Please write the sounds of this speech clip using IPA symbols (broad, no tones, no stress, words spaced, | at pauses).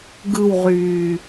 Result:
ɡɯwʁyː